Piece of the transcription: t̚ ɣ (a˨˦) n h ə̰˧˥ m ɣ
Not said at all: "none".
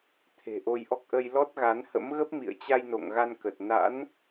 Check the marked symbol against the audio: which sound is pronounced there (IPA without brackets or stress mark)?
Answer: a˨˦